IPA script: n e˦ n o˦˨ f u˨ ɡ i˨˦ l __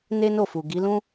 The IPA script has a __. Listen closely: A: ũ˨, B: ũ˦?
B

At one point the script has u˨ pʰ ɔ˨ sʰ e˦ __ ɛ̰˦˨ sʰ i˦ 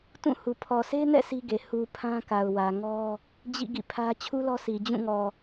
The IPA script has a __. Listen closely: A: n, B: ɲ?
A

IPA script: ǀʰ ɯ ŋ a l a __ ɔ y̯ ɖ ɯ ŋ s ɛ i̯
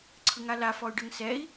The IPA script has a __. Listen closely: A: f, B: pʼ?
A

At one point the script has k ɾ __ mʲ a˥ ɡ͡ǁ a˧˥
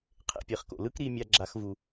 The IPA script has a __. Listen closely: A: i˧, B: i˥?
A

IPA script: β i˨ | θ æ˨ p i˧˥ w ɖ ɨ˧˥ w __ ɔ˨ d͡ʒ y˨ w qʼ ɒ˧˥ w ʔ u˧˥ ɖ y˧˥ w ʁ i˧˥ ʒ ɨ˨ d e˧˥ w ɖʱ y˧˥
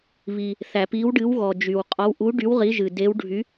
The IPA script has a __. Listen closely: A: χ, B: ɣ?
B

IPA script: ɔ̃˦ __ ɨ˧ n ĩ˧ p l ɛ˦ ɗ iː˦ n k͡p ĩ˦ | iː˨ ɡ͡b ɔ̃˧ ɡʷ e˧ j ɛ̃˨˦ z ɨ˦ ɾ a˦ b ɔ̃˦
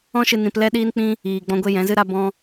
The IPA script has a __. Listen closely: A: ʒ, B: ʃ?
B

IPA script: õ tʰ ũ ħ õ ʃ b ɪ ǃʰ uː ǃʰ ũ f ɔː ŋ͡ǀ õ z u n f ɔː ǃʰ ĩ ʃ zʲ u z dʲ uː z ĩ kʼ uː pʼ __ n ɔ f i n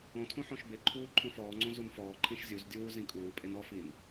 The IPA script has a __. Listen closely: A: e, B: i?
A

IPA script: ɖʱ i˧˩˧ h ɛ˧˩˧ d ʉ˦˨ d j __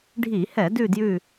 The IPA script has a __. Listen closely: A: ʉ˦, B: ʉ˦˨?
B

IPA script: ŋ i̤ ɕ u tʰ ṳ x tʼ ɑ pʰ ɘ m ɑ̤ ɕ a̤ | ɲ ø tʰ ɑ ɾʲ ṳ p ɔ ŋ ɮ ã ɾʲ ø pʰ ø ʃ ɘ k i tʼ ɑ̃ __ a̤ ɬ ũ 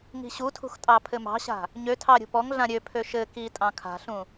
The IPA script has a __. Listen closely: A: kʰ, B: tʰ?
A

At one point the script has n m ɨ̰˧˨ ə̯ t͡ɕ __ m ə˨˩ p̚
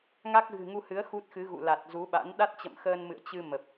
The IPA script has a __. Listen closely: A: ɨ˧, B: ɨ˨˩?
A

